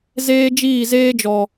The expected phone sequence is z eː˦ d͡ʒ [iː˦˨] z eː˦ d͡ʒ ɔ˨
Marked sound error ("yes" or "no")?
no